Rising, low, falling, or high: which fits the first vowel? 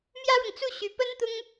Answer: high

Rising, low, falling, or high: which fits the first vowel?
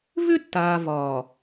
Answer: high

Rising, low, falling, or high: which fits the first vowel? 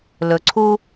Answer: low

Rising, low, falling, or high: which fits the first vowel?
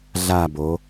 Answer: falling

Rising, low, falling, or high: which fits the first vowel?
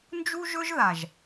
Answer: high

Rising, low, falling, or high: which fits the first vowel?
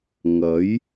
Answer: rising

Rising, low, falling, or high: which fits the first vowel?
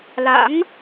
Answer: rising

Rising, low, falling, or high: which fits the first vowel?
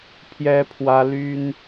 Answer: high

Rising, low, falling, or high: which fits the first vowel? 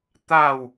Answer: falling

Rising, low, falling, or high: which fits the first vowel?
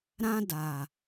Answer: high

